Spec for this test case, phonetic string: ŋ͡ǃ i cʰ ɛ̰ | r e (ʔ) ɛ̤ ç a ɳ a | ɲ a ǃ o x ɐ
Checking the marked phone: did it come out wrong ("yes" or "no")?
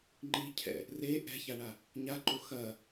no